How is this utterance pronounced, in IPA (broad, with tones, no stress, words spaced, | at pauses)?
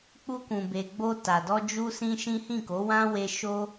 k͡pu˧kũ˨be˨ ɡ͡bo˧ta˨dɔ˧ d͡ʒu˦sĩ˦ʃĩ˦ hĩ˦˨ko˨˦wã˦ we˧ ʃo˦